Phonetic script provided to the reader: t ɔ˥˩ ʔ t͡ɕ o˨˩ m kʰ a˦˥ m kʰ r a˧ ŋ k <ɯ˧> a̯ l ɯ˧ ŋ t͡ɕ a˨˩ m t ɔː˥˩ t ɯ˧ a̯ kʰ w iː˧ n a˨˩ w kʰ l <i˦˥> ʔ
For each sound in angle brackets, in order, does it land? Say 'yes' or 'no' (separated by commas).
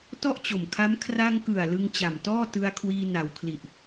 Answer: no, no